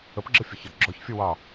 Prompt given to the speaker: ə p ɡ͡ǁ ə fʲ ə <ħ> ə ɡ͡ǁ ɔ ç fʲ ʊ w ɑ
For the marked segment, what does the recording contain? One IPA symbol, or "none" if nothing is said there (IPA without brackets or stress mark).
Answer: ç